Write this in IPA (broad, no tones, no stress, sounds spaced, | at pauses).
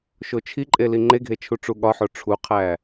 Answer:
ʃ o t͡ʃʰ i ǃʼ e l i ŋ͡ǃ e ɡʱ e t͡ʃʰ u ʈ͡ʂ u ɠ ɒ ħ o ʈ͡ʂʰ u qʰ æ